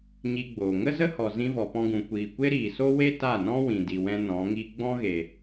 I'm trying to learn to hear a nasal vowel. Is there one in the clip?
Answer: yes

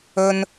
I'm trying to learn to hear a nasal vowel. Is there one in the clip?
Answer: no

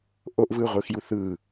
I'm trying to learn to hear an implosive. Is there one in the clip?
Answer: no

